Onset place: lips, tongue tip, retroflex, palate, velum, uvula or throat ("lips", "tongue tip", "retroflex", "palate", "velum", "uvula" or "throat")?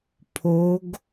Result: lips